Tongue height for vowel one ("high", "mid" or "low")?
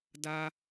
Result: low